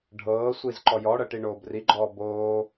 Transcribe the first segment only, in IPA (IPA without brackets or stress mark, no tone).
ɖʱ